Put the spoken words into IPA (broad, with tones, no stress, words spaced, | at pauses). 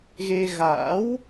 ɣe˧ɣa̰ː˧˥w